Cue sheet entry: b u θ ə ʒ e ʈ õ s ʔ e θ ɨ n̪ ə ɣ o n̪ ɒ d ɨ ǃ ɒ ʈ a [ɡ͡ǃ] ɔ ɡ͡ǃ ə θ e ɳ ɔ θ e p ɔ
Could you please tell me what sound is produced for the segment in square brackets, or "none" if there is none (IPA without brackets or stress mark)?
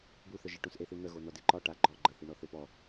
ɡ͡ǃ